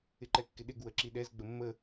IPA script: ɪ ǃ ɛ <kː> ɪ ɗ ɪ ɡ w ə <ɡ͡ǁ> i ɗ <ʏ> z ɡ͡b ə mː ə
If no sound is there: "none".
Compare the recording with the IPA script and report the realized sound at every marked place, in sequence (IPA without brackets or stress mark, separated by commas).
kː, ǁ, ɛ